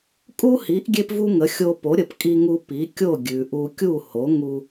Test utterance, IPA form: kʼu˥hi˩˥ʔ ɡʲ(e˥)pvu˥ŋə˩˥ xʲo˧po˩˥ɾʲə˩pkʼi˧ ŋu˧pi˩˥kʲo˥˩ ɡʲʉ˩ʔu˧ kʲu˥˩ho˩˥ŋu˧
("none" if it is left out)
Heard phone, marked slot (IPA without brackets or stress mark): e˥